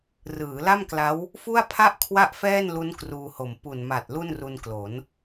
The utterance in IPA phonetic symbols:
r ɯː˩˦ l a˥˩ m k l a˦˥ w | f u˥˩ a̯ pʰ a˥˩ ʔ kʰ w a˥˩ ʔ f ɛː˥˩ n l u˦˥ n k r uː˧ h o˨˩ m p u˨˩ n m a˨˩ t̚ l u˥˩ n r u˧ n k l o˩˦ n

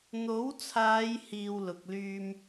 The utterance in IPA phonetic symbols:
n̪ o˨˥ w t͡sʰ aː˨˧ j h iː˨ w l ʊ˧ k̚ l yː˥ m

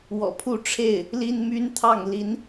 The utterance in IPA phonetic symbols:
w ɔ̰˨˩ pʰ u˥˧ ʈ͡ʂʰ e˥˩ ɪ̯ | l i˥ n m y˥ n t̪ʰ ɑ˥˩ ŋ l i˧˥ n

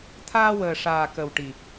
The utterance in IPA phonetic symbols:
t̪ʰ aː˧ w əː˨˩ ʂ aː˨˩ k ə˨˩ w ʈ i˨˩

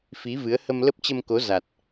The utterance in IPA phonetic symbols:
f i˨˦ v ɨ˨˦ ə̯ h ə˧ m l ə˦˥ p̚ t͡ɕ ə˧ m k o˨˦ z a˨˩ t̚

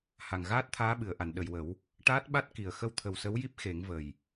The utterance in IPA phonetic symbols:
h a˨˩ ŋ ɣ aː˦˥ t̚ t̪ʰ aː˧˥ ɓ ɨ˨˩˨ ə̯ ʔ a˨˩˨ n ɗ ə˨˩˨ j w ə˨˩˦ w | ʈ aː˦˥ t̚ ɓ a˦˥ t̚ k i˨˩ ə̯ x ə˧ w t̪ʰ ə˨˩ w s ə˧˥ w j i˦˥ p̚ x e˨˩˦ ŋ v ə˨˩ j

